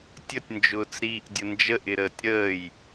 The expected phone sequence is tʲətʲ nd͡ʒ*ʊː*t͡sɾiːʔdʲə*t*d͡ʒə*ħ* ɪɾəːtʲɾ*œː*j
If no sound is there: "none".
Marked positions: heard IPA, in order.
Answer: ʊː, n, ʔ, əː

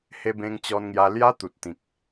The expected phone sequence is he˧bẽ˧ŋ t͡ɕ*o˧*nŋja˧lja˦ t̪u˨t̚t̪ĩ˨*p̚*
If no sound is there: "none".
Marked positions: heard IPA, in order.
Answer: ɔ˧, k̚

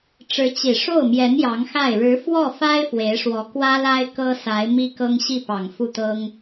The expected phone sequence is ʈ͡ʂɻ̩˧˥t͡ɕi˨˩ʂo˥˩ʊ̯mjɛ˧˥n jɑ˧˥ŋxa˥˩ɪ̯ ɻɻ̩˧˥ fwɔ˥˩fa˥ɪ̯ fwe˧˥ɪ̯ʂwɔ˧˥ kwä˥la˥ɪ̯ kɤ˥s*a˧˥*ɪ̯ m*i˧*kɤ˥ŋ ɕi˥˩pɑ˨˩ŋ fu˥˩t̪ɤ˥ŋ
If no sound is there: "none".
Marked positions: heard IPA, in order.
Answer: a˧˥, i˥

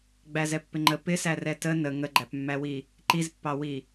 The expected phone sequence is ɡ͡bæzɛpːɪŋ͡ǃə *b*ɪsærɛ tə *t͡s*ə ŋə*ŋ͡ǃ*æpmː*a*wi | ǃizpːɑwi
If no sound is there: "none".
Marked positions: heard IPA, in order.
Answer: p, n, ɡ͡ǃ, æ

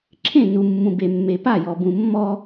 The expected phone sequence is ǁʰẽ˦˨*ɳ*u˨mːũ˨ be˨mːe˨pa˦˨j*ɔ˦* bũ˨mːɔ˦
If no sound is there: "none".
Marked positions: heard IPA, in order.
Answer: n, ɔ˨

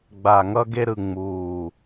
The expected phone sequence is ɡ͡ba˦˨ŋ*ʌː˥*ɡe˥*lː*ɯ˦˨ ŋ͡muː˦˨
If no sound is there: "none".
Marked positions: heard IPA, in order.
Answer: ʌ˥, ɾ

